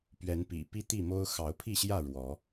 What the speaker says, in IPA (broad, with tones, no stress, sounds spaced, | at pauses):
p ɥ ɛ˨˦ n p ḭ˨˩ p i˦ t̪ i˥˨ m o˦ ʊ̯ x ɑ˨˦ ʊ̯ pʰ i˥˨ ɕ j ä˥˨ ɻ w ɔ˨˦